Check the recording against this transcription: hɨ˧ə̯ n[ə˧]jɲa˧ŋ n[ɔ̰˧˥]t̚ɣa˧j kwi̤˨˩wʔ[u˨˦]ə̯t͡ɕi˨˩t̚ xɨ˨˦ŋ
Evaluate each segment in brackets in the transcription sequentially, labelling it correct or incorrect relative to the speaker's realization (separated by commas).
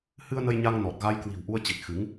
correct, incorrect, incorrect